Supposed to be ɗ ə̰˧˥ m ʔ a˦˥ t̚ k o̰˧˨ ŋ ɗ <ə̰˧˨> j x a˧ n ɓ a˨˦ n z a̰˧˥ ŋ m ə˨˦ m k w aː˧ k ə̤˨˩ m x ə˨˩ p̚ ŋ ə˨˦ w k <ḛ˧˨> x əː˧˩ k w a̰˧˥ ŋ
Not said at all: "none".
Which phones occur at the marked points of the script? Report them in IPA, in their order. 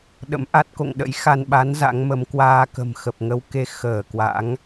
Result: ə̰˧˥, e˧

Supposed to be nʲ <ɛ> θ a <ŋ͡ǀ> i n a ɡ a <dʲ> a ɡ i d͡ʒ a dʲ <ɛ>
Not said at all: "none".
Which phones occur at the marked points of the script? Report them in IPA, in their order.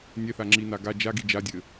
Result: ɛ, ŋ͡ǁ, d͡ʒ, ɘ

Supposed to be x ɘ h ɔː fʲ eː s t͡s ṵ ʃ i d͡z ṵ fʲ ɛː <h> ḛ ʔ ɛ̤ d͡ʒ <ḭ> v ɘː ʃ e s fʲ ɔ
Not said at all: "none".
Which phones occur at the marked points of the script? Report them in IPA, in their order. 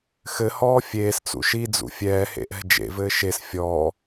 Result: h, ḛ

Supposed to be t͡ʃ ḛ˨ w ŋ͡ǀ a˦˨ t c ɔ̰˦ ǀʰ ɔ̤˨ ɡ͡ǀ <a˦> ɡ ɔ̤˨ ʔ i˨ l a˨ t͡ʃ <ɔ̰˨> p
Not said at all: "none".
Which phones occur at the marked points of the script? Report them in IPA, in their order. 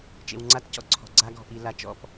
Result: a˦, ɔ̰˨

